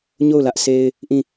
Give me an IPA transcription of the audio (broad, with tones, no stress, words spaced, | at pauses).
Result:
ɲo˦˨ʊ̯lä˦ʔse˦ɪ̯ | ʔĩ˦˨